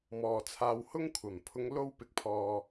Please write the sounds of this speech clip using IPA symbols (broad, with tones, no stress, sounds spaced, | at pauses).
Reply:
m ɔː˨ t͡sʰ aː˧ w h ʊ˥ ŋ kʷʰ ɐ˨˩ m pʰ ʊ˨˧ ŋ l o˧ w p ɪ˨ k̚ pʰ ɔː˨